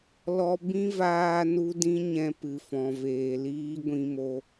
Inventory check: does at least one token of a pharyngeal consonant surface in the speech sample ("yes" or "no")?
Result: no